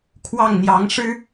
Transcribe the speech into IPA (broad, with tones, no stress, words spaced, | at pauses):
kʰwɑ˥˩ŋn̪jɑ˧˥ŋ ʂɻ̩˥